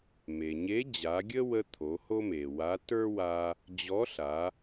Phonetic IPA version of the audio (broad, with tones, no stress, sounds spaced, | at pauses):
m e˩ ɲ e˧˥ d͡ʑ a˩˧ ɡʲ ə˥ w ə˧ t̪ʰ o˩˧ h o˥ m e˩ w a˧˥ t ə˞˥ w a˧ | d͡ʑ ɔ˧˥ ɬ a˩˧